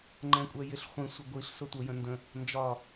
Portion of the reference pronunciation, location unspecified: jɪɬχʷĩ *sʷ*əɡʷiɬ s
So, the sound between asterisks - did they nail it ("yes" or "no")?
yes